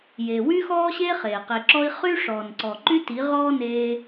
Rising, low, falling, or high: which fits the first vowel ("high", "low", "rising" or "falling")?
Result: low